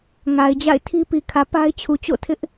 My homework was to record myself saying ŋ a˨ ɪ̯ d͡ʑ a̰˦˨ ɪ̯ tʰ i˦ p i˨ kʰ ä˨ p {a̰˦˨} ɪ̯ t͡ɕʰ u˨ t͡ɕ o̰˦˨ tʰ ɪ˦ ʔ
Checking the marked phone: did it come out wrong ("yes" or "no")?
yes